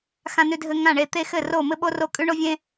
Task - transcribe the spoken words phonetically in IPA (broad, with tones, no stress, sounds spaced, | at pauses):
x ã˥ n ʉ˥ dʱ ɘ˥ ŋ ã˥˨ ɳ e˥˨ t̪ e˥ x ɘ˥˨ r o˥˨ m ɘ˥ ɓ o˥ r o˥˨ kʼ ʉ˥ ɳ o˥ vʲ ẽ˥